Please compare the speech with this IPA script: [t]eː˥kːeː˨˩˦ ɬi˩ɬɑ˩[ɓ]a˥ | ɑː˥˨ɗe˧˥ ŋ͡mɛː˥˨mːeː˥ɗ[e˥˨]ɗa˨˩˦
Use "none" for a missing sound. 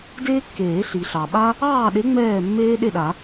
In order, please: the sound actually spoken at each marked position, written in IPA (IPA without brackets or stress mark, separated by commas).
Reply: d, ɓ, e˥˨